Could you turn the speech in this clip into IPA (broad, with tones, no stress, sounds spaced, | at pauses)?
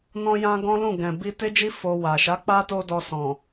n ɔ̃˧ j ã˧ ɡ ɔ̃˦ l ũ˦˨ ɡ ɛ̃˨ b i˧ t e˦ d͡ʒ i˦ f o˧ w a˨ ʃ a˨˦ k͡p a˦ t o˦ d ɔ˧ s ɔ̃˨